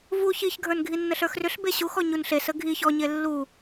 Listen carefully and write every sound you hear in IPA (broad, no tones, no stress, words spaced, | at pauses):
vu çiçɡʱə˞n ɡʱinːəɬə˞xrʏɬ beɕuxɔ ɲunɬesə ɡʱiç ɔɲe lːu